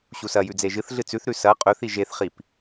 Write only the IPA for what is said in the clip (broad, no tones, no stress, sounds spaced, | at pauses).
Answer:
ɕ u s ɐ j ʉ d͡z e ʒ ɨ θ ɮ ɨ t͡s ʉ θ ɾ ʉ s ɐ qʼ ɵ θ i ʒ e θ χ i p